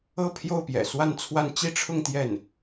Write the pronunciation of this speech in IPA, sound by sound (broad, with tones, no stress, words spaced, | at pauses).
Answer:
ɤ˥˧pʰjo˥˩ʊ̯ pjɛ̰˨˩swa˥˧nt͡sʰwa˥˧n t͡ɕi˥˧ʈ͡ʂʰʊ˥˧ŋ t̪jɛ˥˩n